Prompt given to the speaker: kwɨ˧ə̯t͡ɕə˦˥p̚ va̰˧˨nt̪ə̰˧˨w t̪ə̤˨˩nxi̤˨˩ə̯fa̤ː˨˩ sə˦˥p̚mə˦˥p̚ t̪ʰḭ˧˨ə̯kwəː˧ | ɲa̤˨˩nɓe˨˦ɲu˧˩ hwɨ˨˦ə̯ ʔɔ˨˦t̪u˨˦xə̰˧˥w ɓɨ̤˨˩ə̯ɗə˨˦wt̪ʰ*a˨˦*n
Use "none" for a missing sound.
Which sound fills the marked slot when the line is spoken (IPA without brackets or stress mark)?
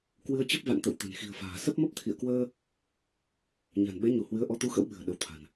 a̤˨˩